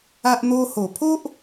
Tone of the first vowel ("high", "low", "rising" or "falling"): high